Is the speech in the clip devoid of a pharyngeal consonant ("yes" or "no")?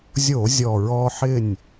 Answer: no